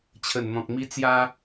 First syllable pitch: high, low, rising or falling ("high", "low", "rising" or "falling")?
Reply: low